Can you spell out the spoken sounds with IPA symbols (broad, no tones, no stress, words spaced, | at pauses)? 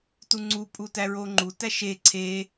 tuŋ͡ǀupʼu tæɹoŋ͡ǃutæ ʃe ǀʰe